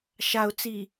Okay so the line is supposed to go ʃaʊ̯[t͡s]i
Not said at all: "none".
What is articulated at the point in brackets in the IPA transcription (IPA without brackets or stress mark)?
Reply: t͡s